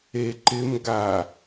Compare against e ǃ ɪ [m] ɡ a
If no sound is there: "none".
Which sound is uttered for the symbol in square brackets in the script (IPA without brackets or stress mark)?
m